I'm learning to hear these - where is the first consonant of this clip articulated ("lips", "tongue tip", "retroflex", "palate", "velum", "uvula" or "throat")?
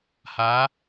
throat